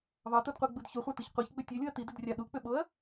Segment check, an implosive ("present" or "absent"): present